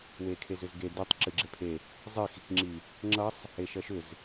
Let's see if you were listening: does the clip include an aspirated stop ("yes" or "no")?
yes